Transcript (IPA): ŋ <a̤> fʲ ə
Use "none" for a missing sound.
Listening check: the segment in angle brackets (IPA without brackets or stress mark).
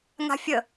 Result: a̤